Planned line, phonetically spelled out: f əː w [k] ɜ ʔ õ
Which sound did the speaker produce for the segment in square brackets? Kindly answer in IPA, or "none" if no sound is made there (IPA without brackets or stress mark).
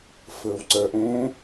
ǀ